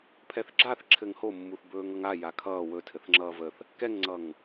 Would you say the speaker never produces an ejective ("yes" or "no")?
yes